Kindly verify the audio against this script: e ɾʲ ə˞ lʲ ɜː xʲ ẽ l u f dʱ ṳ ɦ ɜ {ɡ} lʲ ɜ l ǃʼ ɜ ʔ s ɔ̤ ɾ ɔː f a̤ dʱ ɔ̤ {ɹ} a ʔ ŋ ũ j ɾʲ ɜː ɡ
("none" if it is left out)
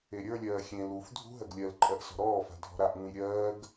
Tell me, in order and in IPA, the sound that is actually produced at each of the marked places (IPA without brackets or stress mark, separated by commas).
ɡ, ɾ